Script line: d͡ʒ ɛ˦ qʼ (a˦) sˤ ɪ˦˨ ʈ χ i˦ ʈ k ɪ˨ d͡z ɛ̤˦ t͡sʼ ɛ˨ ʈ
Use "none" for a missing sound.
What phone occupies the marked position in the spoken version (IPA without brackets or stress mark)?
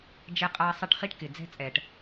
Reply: a˦